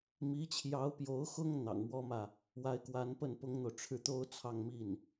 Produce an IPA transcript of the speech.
m i˧˥ t͡ɕʰ j ɑ˧˥ ʊ̯ p j o˧˥ ʊ̯ x ʊ˥ ŋ n̪ ɑ̰˨˩ ŋ m w ɔ˥ m ä˨ | w a˧˥ ɪ̯ k w a˧˥ n p ə˥˩ n p ʊ˥ ŋ n̪ o˨ ʊ̯ ʈ͡ʂʰ ɻ̩˥˩ t̪ o˥ ʊ̯ t͡sʰ ɑ˥˧ ŋ m i˥˩ n

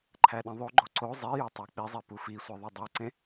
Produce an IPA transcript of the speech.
ǃʰ æ ɗ ĩ ðˤ o ɡ͡ǃ o ǀ o zˤ e j u tˤ æ k͡p i zˤ e p u f i sʷ i ðˤ o dˤ e ǀ ẽ

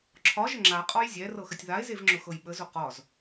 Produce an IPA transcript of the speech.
ǁʰ ɒ ʒ ə ŋ͡ǁ a qʼ ɒ j zʲ ɛ r ɤ x ə tʲ ð a e̯ z e v ŋ͡ǁ ʊ x ɤ j ɓ ə z ʊ q ɒ z

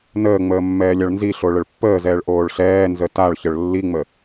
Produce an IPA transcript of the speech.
n əː ŋ͡m əː mː ɛː lʲ a ɭ n z i ɬ o ɭ ə ɭ pː əː z ɛː ɭ ʔ oː ɭ ɬ ɛː n z ə t a ɭ ç ə ɭ lː i ŋ͡m ə

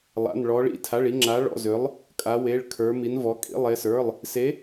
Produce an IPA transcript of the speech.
lˠ a̰˧˥˧ n ɭ ɔ˧˥ ɭ ḭ˧˥ tʰ a˧˥˧ ɭ i˧˥ ŋ͡ǁ a˧˥ ɭ ɔ̰˧˥˧ z ʏ˧˥ lˠ | kʼ a˧˥ w e˧˥˧ ɭ kʰ ə˞˧˥ m i˧˥ n v ɔ˧˥ kʼ ḭ˧˥˧ lˠ e˧˥ s ə˞˧˥˧ lˠ | s e˧˥

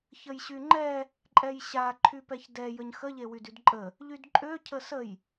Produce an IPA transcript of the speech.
ç ə j ɕ y ŋ͡ǃ ɛ | ǃʼ ɛ j ɕ a ǃʰ y p ɛ ç d ɛ j ə ɲ x ə ʎ e w y d y d ǃʼ ə | ʎ y d ǃʼ ø cʰ ə s ə j

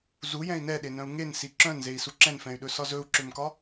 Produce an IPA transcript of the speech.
z u j ɛ̃ i̯ n ɛ ɗ e n œ̃ u̯ ŋ e n s i ǁ œ̃ n z e i̯ s u ǁ ɛ̃ n f ɛ̃ y̯ ɗ ɵ s ɒ z ɵ u̯ ǁ ø m k ɒ

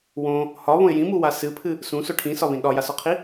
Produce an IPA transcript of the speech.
w õ | h ɒ β õ ɪ̯ j ĩ m u w a s ɨ pʰ ɨ | s ũ s o ʈʰ ĩ s ɒ β ĩ ɗ ɒ j a s ɒ qʰ i

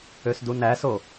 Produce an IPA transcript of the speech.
ø s d u n æ s o

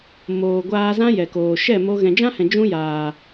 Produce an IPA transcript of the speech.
m oː˨ ɡʷ aː˧ z ã˦ j ɛ˨ k oː˨ ʃ ɛ˦˨ m o˧ ɣ ɛ̃˨ d͡ʒ ã˦ h ɛ̃˨ d͡ʒ ũ˦ j aː˨

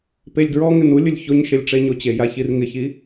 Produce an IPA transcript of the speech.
p e lʲ d ɹ ɔ ŋ ɪ n u lʲ ʊ lʲ ç o ɲ ʃ e lʲ ʈ͡ʂ e ɲ o t͡ɕ e j a ç i r ŋ ɪ ç i

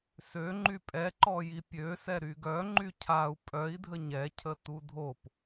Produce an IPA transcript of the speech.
s ø ŋ͡ǃ y pʼ ɛ ǃ ɔ j i pʲ ø s ɛ ɾ y ɡ œ ŋ͡ǃ y cʰ a u̯ pʼ œ i̯ dʱ ə ɲ ɛ cʰ ə t u dʱ o p

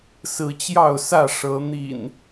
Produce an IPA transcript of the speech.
s ɹ̩˨˦ t͡ɕ j ɑ˥˨ ʊ̯ s ä˥˨ ʂ ɤ˨˦ n̪ ḭ˨˩ n

